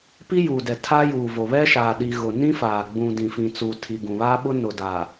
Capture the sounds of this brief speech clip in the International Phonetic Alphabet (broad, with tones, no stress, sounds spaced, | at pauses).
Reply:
p i˦ j uː˨ d ɛ˨ tʰ aː˦ j uː˨ v o˨ β ɛ˦ ʃ aː˨ ɗ i˨ ɣ ʊ˨ n ĩ˦ f aː˨ ɡ͡b ũ˨ d ĩ˨ f ĩ˨ t͡s uː˨ tʰ i˨ ɡ ũ˨ β aː˦ ɓ ʊ˦ n ʊ˨ d aː˨